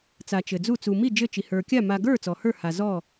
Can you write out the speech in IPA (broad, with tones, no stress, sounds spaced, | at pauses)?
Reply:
t͡s a˨ t͡ʃ ɘ˨ d͡z u˥˨ t͡s u˨ m i˥˨ d͡ʒ ɘ˥˨ t͡ʃ i˨ h ə˞˨ kʲ a˥˨ m a˨ ɡ ə˞˥˨ t͡s ɔ˨ h ə˞˥˨ h a˨ z ɔ˥˨